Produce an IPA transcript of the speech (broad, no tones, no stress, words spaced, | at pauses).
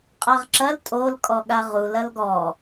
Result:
qʼaʁǁɐl tʼol kʼɔɠaʁul ɐlɡɔ